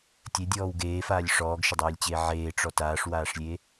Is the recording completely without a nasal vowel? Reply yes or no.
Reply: yes